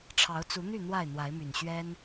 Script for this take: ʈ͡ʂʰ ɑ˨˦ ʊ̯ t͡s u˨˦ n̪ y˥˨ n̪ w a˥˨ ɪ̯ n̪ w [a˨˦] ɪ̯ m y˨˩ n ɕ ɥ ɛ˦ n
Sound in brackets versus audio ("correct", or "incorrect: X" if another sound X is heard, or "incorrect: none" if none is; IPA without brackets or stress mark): correct